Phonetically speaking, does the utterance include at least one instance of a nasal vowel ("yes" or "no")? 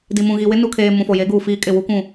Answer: yes